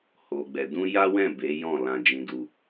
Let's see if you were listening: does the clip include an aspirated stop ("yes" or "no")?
no